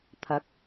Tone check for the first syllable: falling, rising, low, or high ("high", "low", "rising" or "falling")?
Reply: rising